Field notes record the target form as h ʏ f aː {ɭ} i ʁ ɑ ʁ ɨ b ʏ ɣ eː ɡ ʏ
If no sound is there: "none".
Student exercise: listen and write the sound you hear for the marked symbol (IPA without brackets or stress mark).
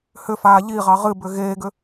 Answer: ʎ